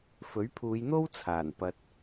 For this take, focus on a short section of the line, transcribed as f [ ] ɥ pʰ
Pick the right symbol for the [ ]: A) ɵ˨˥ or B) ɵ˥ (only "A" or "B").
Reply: A